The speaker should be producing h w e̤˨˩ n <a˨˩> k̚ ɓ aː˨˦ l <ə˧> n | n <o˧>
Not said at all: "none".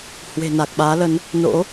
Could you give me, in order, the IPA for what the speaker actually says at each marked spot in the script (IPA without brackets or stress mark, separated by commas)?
a˨˩, ə˨˦, o̰˧˥